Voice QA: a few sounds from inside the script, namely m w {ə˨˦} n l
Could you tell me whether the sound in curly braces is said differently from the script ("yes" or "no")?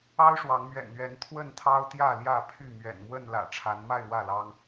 yes